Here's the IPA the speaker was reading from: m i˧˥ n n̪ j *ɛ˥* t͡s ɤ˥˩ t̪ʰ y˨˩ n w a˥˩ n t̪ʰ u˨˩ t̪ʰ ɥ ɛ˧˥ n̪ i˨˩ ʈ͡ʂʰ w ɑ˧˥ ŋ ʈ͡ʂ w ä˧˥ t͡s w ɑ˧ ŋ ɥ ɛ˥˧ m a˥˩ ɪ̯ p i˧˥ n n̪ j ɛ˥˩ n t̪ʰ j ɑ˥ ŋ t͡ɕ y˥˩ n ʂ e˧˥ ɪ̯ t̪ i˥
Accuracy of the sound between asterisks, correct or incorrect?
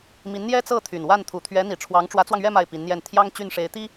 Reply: correct